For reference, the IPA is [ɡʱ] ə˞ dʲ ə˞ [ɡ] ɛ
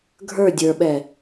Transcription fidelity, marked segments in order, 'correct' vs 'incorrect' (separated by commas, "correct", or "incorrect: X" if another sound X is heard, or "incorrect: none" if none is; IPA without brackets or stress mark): correct, incorrect: ɓ